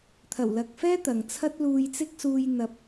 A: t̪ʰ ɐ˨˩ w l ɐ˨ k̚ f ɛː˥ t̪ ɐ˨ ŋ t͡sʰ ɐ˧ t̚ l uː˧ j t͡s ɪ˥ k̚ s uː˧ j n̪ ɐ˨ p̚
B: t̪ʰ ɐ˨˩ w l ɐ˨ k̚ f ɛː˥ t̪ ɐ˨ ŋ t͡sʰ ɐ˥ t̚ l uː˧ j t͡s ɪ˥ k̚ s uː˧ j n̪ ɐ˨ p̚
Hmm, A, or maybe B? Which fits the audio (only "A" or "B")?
B